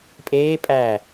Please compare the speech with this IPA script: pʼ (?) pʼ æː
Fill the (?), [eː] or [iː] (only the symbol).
eː